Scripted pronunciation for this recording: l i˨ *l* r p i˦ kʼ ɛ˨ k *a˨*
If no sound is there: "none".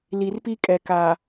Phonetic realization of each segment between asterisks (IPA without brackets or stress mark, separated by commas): none, a˨